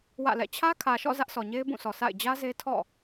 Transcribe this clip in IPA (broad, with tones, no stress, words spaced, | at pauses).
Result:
wä̰˦˨lɛ̰˦˨ t͡ɕʰä˦kʰä˨ʃɔ̰˦˨ zä˦ʔsɔ˨ɲe˦ɪ̯ bũ˦˨sʰɔ˨ sʰa̰˦˨ɪ̯ d͡ʑä˦ze˦ tʰɔ̰˦˨